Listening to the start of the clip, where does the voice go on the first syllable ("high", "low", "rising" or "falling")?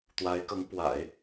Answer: rising